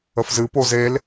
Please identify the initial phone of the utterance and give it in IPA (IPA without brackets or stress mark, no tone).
ə